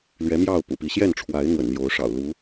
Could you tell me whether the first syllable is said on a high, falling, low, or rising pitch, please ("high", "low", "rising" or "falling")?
rising